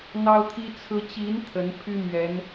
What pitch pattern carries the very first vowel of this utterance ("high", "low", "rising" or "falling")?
high